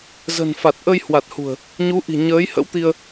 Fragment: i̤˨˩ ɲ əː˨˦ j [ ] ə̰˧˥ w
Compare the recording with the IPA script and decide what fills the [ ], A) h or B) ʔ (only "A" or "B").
A